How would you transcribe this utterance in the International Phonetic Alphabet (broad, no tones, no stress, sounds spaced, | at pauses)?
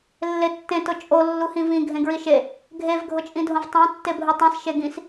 lː e tː ẽ t ʊ t͡ʃʼ o lː u h ĩ v ĩ ɡʱ ẽ ɡ ɹ i ʃ e | ɡʱ e v ɡʱ ʊ t͡ʃʼ ĩ dʱ õ v tˤ ẽ tː e bʱ u tˤ ĩ s ʃ e ɡ ĩ s